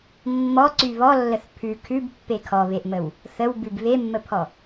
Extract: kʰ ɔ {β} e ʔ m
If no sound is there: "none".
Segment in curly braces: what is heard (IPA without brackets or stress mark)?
β